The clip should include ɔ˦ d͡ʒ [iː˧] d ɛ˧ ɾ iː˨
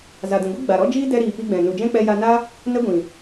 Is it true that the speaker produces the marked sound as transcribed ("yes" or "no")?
no